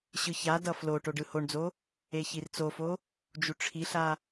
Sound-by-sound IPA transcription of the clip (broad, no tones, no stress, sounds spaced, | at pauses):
ɕ ɯ ç a d ʌ f l o ʈ o ɖ ɯ h o ɳ d͡z o | e ç i r t͡s o f o | d͡ʒ u ʈ͡ʂʰ i ɬ a